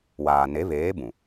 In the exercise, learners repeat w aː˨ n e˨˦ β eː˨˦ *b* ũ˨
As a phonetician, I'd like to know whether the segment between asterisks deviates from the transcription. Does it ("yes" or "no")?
no